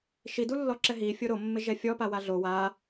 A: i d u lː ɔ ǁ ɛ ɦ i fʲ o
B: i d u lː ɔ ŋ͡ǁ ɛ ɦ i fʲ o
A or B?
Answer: A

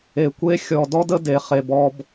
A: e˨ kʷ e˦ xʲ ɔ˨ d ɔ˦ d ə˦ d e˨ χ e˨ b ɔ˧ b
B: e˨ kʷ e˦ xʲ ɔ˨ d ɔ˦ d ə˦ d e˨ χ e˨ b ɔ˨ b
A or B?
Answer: A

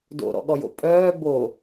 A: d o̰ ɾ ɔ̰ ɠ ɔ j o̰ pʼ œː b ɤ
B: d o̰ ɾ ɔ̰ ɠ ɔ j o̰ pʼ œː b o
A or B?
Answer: B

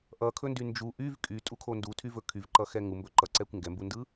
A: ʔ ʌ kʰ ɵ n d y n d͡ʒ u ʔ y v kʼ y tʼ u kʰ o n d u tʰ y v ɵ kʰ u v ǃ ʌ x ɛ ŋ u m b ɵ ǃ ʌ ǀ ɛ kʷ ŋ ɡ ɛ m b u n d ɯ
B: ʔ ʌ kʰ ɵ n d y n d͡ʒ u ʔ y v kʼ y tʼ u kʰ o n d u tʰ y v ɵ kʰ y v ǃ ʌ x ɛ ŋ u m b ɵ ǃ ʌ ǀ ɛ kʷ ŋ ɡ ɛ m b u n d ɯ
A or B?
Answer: B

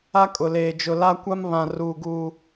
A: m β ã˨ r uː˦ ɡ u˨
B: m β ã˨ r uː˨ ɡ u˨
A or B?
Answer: B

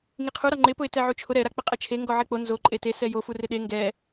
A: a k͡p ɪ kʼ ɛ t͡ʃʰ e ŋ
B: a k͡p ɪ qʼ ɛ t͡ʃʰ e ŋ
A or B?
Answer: B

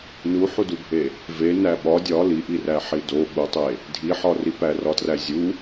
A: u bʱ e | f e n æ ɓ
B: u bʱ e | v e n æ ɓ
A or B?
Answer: B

